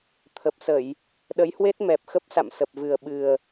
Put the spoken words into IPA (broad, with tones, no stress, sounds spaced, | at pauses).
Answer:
t̪ʰ ə˨˩ p̚ s ə˧˩˨ j | ɗ ə˨˦ j h w e˦˥ t̚ m ɛ˨˩ p̚ x ə˦˥ p̚ s a̰˧˨ m s ə˨˩ p̚ v ɨ˨˩ ə̯ ɓ ɨ˨˩ ə̯